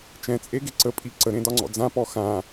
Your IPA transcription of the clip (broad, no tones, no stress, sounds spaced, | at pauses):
t͡ʃ ɛ̃ t͡sʼ e ɡ e ǀ ə pʼ i ǀ ə ɾ ẽ d ɒ ŋ͡ǀ ɔ̰ d͡z ã p ɔ x ã